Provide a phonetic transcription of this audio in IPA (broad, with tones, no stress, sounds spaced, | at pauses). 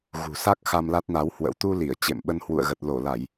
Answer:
ɣ ṳ˨˩ s a˦˥ k̚ x a˧ m l a˦˥ t̚ n a˨˦ w h w ə̰˧˥ w t̪ u˧ l i˧˩ ə̯ t͡ɕ ḛ˧˨ m ɓ ə˧ n h w ṵ˧˨ ə̯ ɣ ə˨˩ t̚ l o˧˩ l a˧˩˨ j